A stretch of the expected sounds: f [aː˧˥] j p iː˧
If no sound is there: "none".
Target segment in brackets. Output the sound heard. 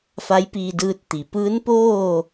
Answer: a˧˥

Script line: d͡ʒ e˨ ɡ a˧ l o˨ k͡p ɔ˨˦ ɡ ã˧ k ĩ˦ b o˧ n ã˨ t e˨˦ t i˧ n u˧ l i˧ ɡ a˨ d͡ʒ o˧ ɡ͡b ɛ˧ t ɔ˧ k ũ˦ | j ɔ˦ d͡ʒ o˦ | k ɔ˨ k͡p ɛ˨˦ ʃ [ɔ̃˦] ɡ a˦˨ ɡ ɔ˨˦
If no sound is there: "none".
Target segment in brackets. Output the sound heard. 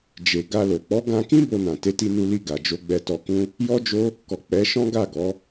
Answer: ɔ̃˦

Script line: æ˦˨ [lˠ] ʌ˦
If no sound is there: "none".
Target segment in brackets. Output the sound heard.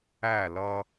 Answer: l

